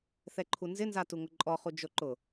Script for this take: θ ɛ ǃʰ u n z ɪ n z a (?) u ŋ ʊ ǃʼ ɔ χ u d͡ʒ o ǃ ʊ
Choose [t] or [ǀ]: t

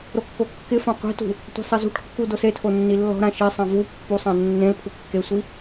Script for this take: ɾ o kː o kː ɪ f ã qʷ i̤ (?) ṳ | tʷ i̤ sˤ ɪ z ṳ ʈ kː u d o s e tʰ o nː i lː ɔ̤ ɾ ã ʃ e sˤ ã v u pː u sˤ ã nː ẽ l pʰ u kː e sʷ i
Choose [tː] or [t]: t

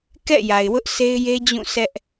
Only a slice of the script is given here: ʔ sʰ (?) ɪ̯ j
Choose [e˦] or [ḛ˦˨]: e˦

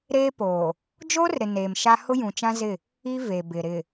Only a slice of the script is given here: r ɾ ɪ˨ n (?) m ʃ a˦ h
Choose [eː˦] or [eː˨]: eː˨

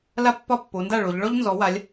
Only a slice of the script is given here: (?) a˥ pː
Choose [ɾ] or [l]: l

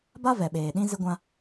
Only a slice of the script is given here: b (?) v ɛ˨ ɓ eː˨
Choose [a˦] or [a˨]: a˦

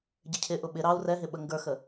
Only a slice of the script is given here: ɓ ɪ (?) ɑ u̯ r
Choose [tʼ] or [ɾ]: ɾ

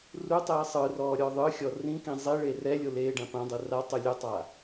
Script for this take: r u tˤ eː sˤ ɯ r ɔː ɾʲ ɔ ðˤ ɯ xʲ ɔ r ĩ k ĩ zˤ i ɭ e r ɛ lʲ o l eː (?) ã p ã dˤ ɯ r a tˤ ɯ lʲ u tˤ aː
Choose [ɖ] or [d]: ɖ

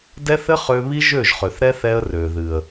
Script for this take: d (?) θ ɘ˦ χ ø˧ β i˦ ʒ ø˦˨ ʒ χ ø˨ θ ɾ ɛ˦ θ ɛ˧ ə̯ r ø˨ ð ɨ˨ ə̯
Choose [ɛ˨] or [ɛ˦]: ɛ˦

